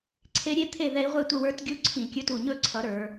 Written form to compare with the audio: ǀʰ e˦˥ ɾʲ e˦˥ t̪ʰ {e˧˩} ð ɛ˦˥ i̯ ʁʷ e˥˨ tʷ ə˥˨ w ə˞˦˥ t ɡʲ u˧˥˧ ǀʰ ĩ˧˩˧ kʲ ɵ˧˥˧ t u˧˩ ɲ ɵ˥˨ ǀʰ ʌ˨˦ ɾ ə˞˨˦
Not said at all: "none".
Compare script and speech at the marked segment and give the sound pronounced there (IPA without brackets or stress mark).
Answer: e˥˨